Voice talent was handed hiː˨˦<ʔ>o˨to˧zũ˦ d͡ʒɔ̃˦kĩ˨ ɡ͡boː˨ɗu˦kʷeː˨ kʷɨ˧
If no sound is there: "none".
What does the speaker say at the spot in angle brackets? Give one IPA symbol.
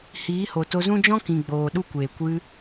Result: h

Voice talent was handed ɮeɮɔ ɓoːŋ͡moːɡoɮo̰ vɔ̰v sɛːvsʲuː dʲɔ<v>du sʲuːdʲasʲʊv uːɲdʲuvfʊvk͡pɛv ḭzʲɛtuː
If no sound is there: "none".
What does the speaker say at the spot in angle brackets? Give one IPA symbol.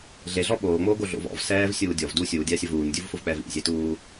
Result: v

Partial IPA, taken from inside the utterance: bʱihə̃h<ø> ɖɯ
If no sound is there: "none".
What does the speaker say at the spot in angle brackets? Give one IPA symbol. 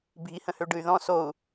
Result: ø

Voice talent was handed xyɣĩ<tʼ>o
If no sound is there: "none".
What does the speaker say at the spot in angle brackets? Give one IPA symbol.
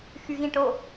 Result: ʈ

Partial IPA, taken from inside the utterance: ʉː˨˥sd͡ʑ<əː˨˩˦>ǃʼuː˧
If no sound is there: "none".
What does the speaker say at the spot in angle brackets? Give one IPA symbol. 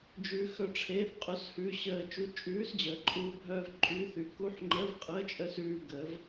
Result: əː˨˩˦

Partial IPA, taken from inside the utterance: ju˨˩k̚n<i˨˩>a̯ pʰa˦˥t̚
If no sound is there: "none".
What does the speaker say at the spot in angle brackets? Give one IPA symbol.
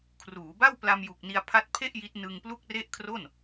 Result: i˧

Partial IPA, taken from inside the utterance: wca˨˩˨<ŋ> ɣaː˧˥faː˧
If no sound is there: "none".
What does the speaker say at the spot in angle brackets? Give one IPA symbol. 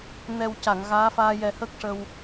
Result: ŋ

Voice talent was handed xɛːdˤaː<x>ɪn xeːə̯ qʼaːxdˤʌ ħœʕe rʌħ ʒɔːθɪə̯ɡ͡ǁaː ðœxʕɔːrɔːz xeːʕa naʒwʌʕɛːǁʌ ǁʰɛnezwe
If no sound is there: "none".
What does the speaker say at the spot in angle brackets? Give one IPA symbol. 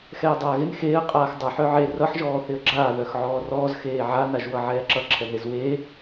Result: ɣ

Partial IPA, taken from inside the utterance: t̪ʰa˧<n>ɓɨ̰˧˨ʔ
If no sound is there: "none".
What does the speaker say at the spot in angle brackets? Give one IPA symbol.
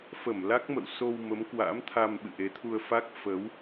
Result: m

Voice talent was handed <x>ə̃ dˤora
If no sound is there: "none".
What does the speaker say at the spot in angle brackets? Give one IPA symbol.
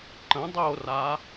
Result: ǃ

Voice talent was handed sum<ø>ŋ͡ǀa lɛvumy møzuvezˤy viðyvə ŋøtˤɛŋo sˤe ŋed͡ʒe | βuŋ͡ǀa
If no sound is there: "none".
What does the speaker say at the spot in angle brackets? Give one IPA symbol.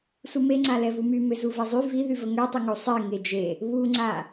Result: e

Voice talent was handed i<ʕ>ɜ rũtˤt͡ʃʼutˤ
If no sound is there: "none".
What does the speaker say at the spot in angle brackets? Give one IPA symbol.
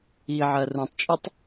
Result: ʕ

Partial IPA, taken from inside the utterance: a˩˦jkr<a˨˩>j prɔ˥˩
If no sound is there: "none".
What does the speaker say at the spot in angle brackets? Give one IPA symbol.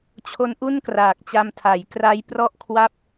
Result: a˦˥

